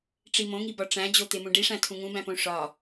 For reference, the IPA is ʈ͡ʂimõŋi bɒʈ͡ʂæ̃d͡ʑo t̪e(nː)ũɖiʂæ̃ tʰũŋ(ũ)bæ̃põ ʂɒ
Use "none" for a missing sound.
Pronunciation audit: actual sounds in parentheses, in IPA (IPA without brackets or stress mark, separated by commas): m, ũ